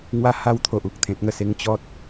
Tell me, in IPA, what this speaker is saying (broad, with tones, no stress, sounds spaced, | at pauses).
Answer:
ŋ w a˥˧ h a˥˧ w t̪ʰ o˨ ʔ u˨ k̚ t̪ʰ ẽ˨ t̚ ŋ ə˧ s e˧ ŋ t͡ɕ ɔ˦ t̚